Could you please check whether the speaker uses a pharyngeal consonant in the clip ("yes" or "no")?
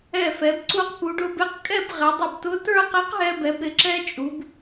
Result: no